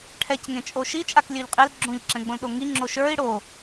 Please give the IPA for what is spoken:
ʈʰ ɛ c ŋ ẽ t͡ʃʼ o ʃ i t͡ʃʼ a k lʲ ø ʎ qʼ e l ɡ͡ǁ õ ʎ ǁ ɛ̃ ɡ͡b õ l ɗ o ŋ i ŋ͡ǁ o ʃ ə˞ i̯ ɽ o

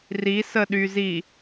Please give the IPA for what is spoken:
r i s ə ɗ y z i

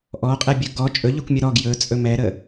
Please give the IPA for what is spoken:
ʔ ɔ qʼ ɛ bʲ ɵ ɡ ɔ t͡ʃʼ ɵ ʎ ɵ kʷ mʲ ə ɾ ɔ ɡ j ɵ t͡sʼ ɵ m ɛ ɾ ə

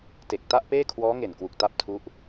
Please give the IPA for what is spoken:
t e˨˩ k̚ t a˥˩ ʔ p eː˥˩ kʰ w ɔː˦˥ ŋ e˨˩ n k w u˨˩ k̚ t a˥˩ p̚ tʰ u˦˥ ʔ

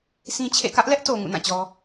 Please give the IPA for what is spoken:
sʰ ĩ˦ t͡ɕʰ ḛ˦˨ k ä˦ ʔ l ɛ˦ ʔ t o˨ ŋ ṵ˦˨ n ã˦˨ t͡ɕ ɔ˦

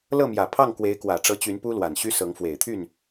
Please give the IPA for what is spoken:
l ɤ˥˩ m j ä˨˩ pʰ ɑ˥˩ ŋ k w e˧˥ ɪ̯ k w ä˨˩ ʈ͡ʂ ɤ˧˥ t͡ɕ y˧˥ n p u˥ l w a˨˩ n ɕ y˥ s ɤ˧˥ ŋ f w e˨˩ ɪ̯ t̪ʰ y˥˩ n

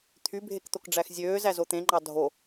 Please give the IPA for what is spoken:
t̪ʰ y bʱ e k t̪ o k ɖ͡ʐ æ x zʲ øː z æ z o t̪ ẽ ŋ͡ǃ ɑ dʱ o

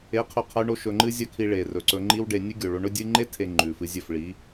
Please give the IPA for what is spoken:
e˨˦ qʰ ɵ˨ qʰ ɐ˧ y̯ ɳ o˧ ʃ ɵ˧ ŋ͡ǃ ɨ˦ zʲ ɐ˦ kʰ i˧ ɭ e˨ r ɵ˨ ǀ ɵ˧ ŋ͡ǃ i˧ w ɖ e˨ nʲ ɨ˦ ɡʲ o˨ ɭ o˧ ɳ ɵ˦ dʲ ɨ˧ ŋ͡ǃ e˦ tʰ e˨ ŋ͡ǃ ʉ˨ f ɨ˧ zʲ ɵ˦˨ f ɭ i˨˦

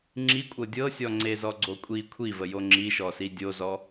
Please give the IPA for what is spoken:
ŋ͡ǁ i kʷʼ ɤ dʲ ɤ sʲ ɔ ŋ͡ǀ e z ɔ ɡ͡ǀ o kʷʼ i kʷʰ i v ə j o ŋ͡ǁ i ʃ ɔ s i dʲ o z ɔ

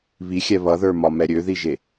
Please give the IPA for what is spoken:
β i xʲ ɛ β ʌ ð ə˞ m ɒ m ɛ ɾʲ ø ð i ʒ e

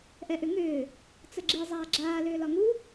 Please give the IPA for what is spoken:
ʔ ɛ ʔ ʏ ŋ ʏː | t͡s ə ɡ͡ǁ i zˤ aː ɡ͡ǁ aː l ʏː l ɒ ŋ u

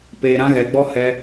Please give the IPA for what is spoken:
p eː˧ ɾ ã˦ ɣ ɛ˧ ɡ͡b ɔ˦ h ɛ˦

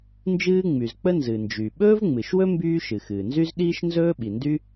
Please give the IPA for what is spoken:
n d͡ʒ ɨː˥ ŋ͡m y˩ z k͡p ə˥ n z ɨ˩ n d͡ʒ y˩ ɓ ɵː˥ v ŋ͡m ɨ˩ ʃ w ɵ˥ m b yː˥ ʃ ɨ˩ x ɨː˩ n z y˥ z ɗ iː˥ ʃ n z ɵː˥ ɓ i˩ n d y˥

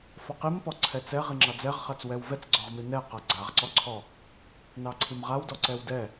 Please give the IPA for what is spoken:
f ɔ q i m p ɔ ǀʰ ɛ t͡s ɛ ʁ i ŋ͡ǁ ɑ d͡z ɛ ʁ χ a t͡s w ɛ w v ɛ t͡s ɡ͡ǀ ɔ ʁ m i n ɛ q a ɡ͡ǀ a ʁ ǀ ɔ ǀʰ ɔ | n ɑ ǀʰ i m ʁ a w d ɔ ǀ ɛ w d ɛ

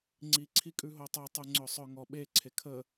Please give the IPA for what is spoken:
ŋ͡ǀ i ǀʰ i kʼ ʉ ɦ o tˤ o tˤ ʉ ŋ͡ǀ œ sˤ œ ŋ ɔ ɓ e ǀʰ e kʰ ə

